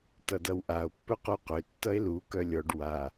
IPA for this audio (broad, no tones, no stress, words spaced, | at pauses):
tʌdʌwʔao̯ pːɵquqʏ tːʌe̯lu kœlʲɔɖ wa